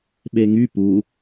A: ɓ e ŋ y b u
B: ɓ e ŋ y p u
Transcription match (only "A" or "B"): B